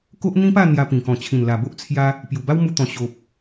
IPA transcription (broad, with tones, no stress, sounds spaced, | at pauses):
k o˦ ʔ n̪ ĩ˦ p a˥˧ n̪ j a˧ p ĩ˨˩ k ɔ̃˨˩ t͡ɕʰ ĩ˨˩ n l a˨˩ b o˦ ʔ t͡sʰ j a˦ | p j u˨˩ b a˦ w m u˧ t̪ ɔ̃˨˩ ɕ o˨ p̚